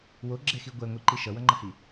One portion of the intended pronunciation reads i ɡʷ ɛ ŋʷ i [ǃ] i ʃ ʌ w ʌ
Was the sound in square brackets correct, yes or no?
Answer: yes